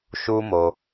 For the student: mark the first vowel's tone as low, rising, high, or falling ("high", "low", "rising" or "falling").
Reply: high